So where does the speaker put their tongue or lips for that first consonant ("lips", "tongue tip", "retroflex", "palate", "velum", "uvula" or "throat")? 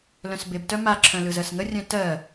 tongue tip